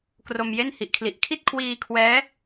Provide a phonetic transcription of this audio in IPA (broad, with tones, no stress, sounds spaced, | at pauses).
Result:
k r o˧ m j e˥˩ n h i˨˩ ʔ kʰ l i˨˩ ʔ kʰ i˥˩ t̚ kʰ w iː˧ kʰ w ɛː˦˥